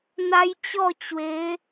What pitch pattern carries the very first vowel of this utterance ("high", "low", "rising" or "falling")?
high